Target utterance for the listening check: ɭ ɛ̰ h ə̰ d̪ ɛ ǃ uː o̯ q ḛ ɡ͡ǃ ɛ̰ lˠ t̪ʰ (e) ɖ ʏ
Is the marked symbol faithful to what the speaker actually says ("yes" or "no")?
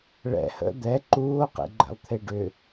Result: yes